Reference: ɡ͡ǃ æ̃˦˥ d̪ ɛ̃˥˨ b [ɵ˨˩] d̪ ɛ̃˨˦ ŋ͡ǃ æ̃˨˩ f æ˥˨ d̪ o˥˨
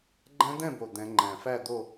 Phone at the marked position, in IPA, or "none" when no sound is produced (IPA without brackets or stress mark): o˨˩